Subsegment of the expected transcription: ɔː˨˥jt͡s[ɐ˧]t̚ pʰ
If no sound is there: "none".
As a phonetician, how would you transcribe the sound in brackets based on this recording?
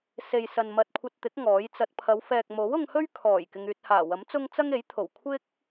ɐ˧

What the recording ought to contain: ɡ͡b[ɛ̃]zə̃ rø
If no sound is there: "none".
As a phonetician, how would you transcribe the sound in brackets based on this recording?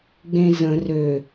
ẽ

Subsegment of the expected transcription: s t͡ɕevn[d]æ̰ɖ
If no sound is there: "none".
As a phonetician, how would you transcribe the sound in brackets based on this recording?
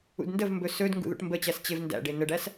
d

